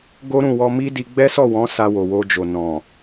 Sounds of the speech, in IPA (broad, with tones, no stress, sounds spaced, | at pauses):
ɡ o˦ ɾ ũ˦˨ w ɔ˧ m i˦ d i˧ ɡ͡b ɛ˦ s ɔ˦˨ w ɔ̃˨˦ s a˧ w o˨ w o˧ d͡ʒ o˨ n ɔ̃˨